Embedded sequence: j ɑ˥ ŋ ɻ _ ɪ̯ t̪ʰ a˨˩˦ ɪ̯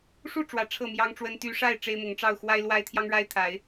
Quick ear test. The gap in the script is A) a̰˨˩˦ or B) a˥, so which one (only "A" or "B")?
B